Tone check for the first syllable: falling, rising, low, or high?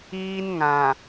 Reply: high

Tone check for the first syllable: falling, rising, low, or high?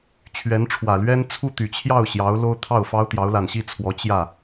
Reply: rising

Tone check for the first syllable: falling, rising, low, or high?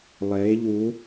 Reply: rising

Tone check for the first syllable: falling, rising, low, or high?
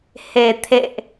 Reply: low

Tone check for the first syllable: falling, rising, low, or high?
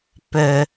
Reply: low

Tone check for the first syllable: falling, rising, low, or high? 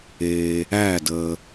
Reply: low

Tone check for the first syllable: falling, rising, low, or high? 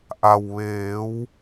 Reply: low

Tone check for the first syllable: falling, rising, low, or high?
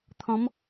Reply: rising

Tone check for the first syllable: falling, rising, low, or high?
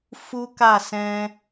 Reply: high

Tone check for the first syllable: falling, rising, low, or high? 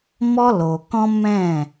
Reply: high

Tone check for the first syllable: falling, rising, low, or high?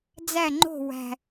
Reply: falling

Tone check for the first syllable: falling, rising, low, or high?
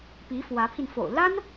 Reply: rising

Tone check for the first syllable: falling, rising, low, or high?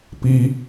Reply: high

